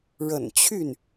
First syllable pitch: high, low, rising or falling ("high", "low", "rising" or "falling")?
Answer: low